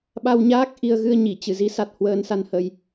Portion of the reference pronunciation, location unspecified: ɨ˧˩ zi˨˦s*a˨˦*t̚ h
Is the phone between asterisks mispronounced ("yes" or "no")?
yes